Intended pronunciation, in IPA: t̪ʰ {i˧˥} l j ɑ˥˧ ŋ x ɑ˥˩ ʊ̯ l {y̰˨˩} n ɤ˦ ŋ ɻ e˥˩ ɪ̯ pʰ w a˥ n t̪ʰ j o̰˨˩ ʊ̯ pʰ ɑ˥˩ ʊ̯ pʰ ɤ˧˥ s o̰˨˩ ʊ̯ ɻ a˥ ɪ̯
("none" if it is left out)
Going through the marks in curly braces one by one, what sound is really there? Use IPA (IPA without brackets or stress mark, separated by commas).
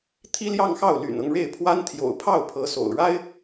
i˥, y̰˨˩